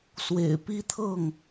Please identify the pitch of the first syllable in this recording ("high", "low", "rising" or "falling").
low